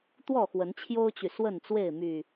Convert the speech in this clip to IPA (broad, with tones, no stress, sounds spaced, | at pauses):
t̪ w ɔ˥˨ x w ə˨˦ n t͡ɕʰ j o˦ ʊ̯ t͡ɕ y˨ s w ə˥˨ n t͡s w e˥˨ ɪ̯ m y˨˩